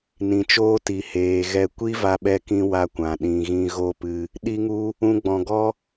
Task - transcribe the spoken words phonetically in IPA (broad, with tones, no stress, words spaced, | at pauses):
nĩ˨t͡ʃoː˦ti˨ heː˨ ɣɛ˧ kʷi˦va˧ɓɛ˧ kĩ˦wa˦kʷã˨ ɗĩ˨ɣĩ˧ ɣo˦pɨ˧ | ɗi˦ŋu˦ | ũ˧ɡ͡bɔ̃˨ɡɔ˦